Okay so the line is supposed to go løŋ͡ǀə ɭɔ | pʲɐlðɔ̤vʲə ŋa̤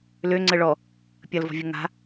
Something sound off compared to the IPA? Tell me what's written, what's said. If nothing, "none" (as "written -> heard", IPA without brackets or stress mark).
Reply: ð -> v